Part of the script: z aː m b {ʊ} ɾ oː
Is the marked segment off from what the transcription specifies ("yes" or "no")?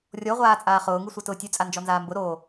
no